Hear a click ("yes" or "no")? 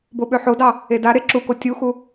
yes